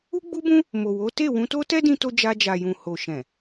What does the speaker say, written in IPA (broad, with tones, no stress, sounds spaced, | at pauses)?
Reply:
u˦ ɡ͡b u˦ b ũ˦ | m o˨ w o˨˦ t e˦˨ w ũ˧ t o˦ t ɛ˦ d ĩ˦ t o˦ d͡ʒ a˧ d͡ʒ a˨ j ũ˨ h o˨ ʃ ɛ̃˨